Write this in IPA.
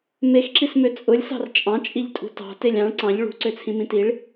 mexǁismø t͡sʼʊlʲsɑ̤r t͡ʃʼɑ̃t͡ʃʼiʎtʼṳ tɑ̤telʲ ɑ̃ɭ ǀɑ̃ʎ ɭṳǀøt͡sʰĩmĩ tiɭ

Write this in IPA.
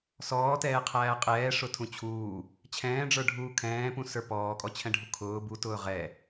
sɔːtɛːqʰæː qʼɛːʂʊtʰũ t͡ɕʰuː | t͡ɕʰɛ̃ːɖ͡ʐə˞ɖʱuː kʰɛ̃ːpũsə˞ pɔːkʼɔt͡ɕʰɛ̃ɖʱu kʰʊː butʊː ʁɛ

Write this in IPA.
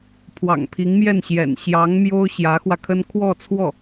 pʰwɑ̰˨˩ŋpʰi˧˥ŋmjɛ˥˩nɕjɛ̰˨˩n ɕjɑ˧˥ŋmjo˥ʊ̯ ɕjä˧˥xwä˧kʰə˥n kʰwɔ˥˧t͡sʰwɔ˥˩

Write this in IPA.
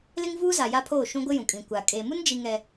lɪ˦ŋvuː˦za˨ ja˦pʰoː˦˨ʃũ˦ ɡʷɪ˦jũ˨kʼĩ˨ kʷa˨ kʼeː˨mu˦nd͡ʒi˨ ŋɛ˨

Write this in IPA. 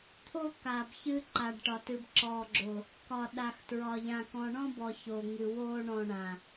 t̪ʰo˦ ka˨bçɨ˧ ǃa˨ɖʈɒ˨ tɨ˨bǁɔː˨ɡ͡ǁo˨ | kɒ˨ɗa˨x tɹɒ˨ ʎã˨kɔ̃˨ɳɔ̃˦bɔ˨ ço˨ŋɨ˨ woː˧ɳɔ̃˨ɳã˨

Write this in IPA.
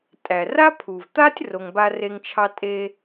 tʼæ˩ra˥pʰu˩vt̪a˥tʲ ro˨ŋba˦re˦ŋt͡ʃʰɑ˥ tʼe˥

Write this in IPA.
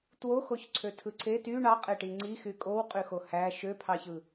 twoxoç ǀʰøtʰɯǀʰet y ɳɑqʼeʈi ŋ͡ǀixy kʼowqʼyxo hæ ʃøpʰɑçɯ

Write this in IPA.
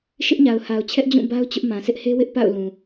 ʃɪ˦ʔɲa˨ʊ̯ha˨ʊ̯t͡ɕʰɛ˦ʔ d͡ʑũ˦˨ba˦ʊ̯ t͡ɕʊ˦ʔmã˨ sʰɪ˦ʔhe˦wɪ˦ʔ pa̰˦˨ʊ̯ lũ˨

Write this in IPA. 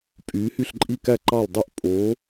pʼyː˩˧hy˧˩ɬǃʼi˧˩kæ˧˩ ǃɑ˧˩l dˤy˧˩ʔ pʼo˩˧

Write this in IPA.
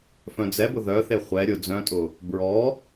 fœ̃d͡zɛbʊ ðœθe χʷɛ ɾʲʊ d͡zœ̃tʼʊ | bɹɔ

